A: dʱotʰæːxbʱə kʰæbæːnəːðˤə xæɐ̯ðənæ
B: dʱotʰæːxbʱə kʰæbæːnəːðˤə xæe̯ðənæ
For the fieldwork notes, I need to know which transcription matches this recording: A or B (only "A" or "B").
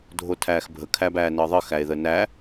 B